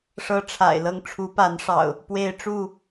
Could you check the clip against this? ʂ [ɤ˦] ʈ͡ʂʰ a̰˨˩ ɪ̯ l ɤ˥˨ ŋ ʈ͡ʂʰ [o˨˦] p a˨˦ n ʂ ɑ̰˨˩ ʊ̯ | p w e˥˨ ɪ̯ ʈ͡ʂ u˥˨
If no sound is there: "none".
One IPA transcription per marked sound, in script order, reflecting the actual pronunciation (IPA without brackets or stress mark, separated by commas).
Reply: ɤ˦, u˨˦